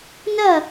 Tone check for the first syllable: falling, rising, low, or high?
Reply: falling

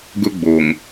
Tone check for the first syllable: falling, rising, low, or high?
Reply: high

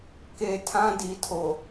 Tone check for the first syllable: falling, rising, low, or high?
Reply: low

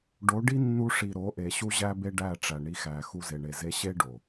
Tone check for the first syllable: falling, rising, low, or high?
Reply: rising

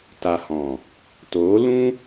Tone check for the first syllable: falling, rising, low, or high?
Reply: low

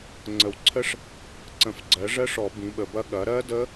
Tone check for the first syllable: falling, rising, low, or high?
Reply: low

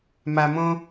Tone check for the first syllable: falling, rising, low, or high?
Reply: low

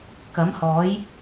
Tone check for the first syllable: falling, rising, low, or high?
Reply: rising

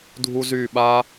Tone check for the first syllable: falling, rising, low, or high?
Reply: high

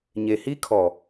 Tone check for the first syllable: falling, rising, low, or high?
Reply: low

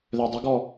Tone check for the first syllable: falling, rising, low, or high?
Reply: low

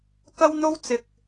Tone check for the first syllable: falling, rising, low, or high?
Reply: high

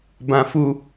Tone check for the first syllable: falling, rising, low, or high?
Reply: high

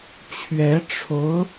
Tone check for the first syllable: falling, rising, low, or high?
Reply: rising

